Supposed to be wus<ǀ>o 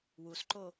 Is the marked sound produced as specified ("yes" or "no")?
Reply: no